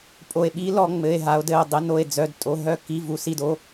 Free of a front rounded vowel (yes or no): no